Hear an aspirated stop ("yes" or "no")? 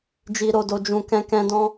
no